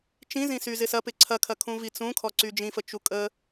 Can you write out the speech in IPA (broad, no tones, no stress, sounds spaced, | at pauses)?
t͡ʃ ĩ z ĩ s y z ɪ s ɐ p ɪ ǀʰ ɐ kʰ ɐ kʰ ũ v i t͡s ũ kʰ ɔ ǀ y d͡ʒ ĩ f ə t͡ʃ u kʼ ə